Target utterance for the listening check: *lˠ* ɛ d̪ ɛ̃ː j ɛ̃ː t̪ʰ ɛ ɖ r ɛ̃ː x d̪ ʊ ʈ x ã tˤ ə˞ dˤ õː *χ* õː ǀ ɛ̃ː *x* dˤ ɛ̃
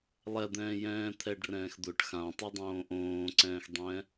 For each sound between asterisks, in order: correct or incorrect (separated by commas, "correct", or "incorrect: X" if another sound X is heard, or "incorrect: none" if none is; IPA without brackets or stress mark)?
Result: correct, incorrect: ʔ, correct